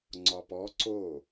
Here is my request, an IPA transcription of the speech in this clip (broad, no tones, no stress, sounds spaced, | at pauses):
ŋ͡ǀ ɒ p ɔ ǀ o